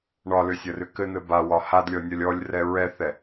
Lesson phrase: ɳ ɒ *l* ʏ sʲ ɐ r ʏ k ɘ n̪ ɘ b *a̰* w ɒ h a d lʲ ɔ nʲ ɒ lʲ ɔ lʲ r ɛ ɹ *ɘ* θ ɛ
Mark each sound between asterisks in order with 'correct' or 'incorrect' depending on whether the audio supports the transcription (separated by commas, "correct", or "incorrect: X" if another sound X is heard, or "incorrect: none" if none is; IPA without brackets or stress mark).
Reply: correct, incorrect: a, incorrect: ɛ